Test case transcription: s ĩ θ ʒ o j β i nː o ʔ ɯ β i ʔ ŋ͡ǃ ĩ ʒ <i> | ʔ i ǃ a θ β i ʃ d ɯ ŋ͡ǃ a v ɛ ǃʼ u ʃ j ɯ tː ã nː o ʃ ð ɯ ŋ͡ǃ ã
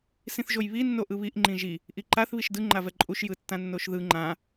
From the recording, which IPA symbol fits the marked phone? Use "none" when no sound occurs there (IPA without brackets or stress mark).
i